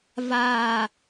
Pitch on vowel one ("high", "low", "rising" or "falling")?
low